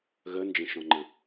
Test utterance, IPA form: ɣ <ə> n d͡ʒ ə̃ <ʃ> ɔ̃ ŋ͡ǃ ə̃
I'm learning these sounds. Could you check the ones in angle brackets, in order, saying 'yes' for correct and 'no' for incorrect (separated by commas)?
yes, yes